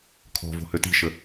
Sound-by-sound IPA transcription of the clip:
kʰ ɔ̤ v o̤ h ø t i̤ ʃ ə

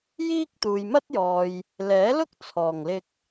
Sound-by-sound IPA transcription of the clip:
j iː˥ k̚ t̪ uː˨ j m ɐ˥ t̚ j ɔː˨ j | l ɛː˨˥ l ʊ˥ k̚ t͡sʰ ɔː˨˩ ŋ l ɪ˧ k̚

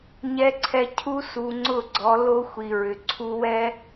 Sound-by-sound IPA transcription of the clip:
ɲ ɛ˨ ǀʰ ɛ˨ cʰ u˦ s u˨ ŋ͡ǀ ʊ˦˨ ɡ͡ǀ ɔ˨˦ l o˦ xʷ i˨ ɹ ʏ˨ ǀʰ u˦ w ɛ˦

